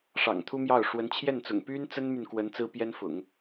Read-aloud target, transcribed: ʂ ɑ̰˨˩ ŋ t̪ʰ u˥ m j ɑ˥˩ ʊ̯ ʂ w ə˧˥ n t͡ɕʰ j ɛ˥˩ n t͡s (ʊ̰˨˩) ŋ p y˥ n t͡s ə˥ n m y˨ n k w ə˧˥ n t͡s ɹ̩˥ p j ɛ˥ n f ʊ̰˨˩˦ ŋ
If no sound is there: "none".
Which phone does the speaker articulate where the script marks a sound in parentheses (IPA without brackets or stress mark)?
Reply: ʊ̰˨˩